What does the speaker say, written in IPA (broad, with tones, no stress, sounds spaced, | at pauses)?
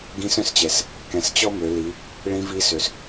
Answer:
ɡ ĩ˧˥ s œ̃˧ s t͡ɕ ɛ˩ s | k ɛ̃˩˧ s t͡ɕ ɔ˥ m ø˩˧ l i˩˧ | ɭ ĩ˧˥ v i˧˥ s ø˩ s